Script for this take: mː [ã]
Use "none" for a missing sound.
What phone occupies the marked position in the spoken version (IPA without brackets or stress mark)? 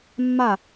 a